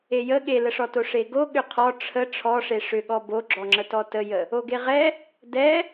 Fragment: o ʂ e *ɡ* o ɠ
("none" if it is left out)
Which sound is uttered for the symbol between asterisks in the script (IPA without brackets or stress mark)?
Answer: ɡ